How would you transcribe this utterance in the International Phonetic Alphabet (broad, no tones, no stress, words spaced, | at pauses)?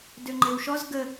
døŋ͡ǃewʃɔz ɡə